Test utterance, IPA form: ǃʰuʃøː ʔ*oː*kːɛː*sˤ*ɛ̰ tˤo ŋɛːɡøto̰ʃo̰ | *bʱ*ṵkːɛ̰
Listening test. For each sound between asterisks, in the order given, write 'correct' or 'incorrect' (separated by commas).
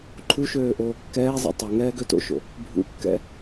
correct, incorrect, correct